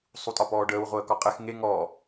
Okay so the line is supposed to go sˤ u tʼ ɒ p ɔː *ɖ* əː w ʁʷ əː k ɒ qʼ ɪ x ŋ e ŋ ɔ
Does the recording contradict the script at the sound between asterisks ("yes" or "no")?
no